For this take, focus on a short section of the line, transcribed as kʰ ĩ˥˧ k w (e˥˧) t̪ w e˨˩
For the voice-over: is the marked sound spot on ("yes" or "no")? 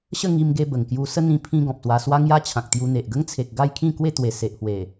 yes